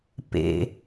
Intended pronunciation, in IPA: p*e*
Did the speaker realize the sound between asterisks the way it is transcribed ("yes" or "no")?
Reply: no